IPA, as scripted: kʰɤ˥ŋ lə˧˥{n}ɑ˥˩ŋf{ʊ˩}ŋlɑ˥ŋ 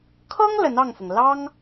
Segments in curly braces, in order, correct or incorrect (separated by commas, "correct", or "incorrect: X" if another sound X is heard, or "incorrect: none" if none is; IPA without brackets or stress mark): correct, correct